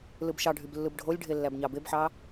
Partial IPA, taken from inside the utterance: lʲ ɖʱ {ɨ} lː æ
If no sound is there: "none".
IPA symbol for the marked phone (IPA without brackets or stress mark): e